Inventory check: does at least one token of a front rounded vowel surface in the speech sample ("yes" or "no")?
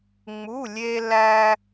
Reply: no